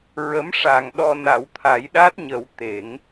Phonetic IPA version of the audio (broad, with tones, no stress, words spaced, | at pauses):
ɹə˧˥mʂa˨˩ŋɗɔ˧ na˨˩˦wt̪ʰa˨˩˦jɗa˦˥t̚ɲə˨˩˦w t̪e˨˩˦ŋ